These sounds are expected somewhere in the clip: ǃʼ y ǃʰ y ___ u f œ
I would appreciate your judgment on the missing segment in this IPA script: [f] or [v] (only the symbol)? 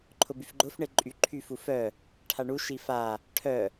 f